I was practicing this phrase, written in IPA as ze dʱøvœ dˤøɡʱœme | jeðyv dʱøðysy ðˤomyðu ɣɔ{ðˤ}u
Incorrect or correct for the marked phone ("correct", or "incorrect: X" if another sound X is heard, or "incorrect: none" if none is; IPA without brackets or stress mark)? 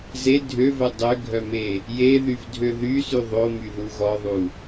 correct